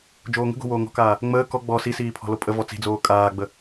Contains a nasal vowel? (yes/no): no